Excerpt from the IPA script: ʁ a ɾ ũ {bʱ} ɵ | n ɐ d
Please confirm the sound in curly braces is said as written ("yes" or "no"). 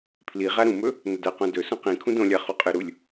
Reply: no